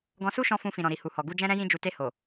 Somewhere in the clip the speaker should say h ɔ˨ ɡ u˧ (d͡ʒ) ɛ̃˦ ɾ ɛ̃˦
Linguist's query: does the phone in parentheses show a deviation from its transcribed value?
no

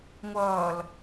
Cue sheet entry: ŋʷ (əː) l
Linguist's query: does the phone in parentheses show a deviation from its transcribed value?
yes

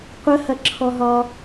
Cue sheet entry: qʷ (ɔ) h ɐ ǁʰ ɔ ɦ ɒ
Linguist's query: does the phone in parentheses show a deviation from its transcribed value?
yes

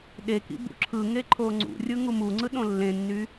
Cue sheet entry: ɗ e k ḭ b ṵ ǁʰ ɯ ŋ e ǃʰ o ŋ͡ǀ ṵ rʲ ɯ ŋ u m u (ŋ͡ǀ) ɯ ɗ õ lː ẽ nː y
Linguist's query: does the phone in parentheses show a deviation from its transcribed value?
no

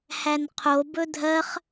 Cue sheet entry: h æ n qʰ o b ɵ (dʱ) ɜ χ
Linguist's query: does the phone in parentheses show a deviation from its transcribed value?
no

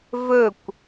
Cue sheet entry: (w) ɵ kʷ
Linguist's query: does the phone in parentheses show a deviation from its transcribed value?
yes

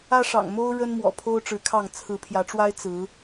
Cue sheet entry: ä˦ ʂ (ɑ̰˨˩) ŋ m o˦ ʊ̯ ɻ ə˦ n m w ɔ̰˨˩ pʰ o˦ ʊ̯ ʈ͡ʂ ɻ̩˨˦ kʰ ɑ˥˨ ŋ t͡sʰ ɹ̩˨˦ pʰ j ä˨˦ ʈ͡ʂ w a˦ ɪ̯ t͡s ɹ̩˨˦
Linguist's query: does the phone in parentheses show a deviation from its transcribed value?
no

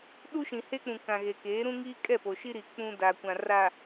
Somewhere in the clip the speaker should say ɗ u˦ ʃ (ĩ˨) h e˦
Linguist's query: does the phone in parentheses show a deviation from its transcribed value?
no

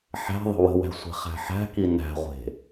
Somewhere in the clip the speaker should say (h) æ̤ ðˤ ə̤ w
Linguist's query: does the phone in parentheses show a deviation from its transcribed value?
yes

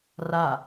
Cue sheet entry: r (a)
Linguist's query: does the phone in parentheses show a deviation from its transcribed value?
no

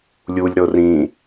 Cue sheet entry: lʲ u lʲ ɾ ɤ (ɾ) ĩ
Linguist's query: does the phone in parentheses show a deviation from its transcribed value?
yes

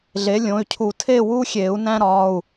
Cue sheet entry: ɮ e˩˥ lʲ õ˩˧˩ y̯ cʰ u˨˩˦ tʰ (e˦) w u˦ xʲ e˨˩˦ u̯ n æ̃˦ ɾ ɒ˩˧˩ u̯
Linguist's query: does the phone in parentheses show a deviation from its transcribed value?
yes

